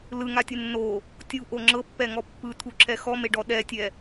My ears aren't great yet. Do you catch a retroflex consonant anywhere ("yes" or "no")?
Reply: yes